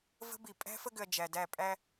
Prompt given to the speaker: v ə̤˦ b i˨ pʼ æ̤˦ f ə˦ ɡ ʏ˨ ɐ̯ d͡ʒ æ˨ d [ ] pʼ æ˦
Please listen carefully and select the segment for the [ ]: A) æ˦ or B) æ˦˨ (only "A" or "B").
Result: B